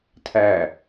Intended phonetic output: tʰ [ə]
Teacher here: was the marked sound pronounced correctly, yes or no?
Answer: no